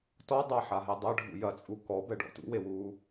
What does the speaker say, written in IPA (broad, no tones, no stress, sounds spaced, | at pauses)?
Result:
t ɔ dˤ a ħ a ɦ e dˤ ɐ ɖʱ ṵ j ɐ t͡sʼ u k ɔ b ɛ ɖ ɔ̰ t ṵ w e w uː